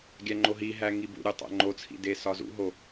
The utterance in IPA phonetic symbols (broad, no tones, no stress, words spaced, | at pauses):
ɡʲæŋ͡ǃoɦiɦæ ŋibṵɾʲu tˤæ̰ŋ͡ǃot͡sʰḭ desɒzṵɦo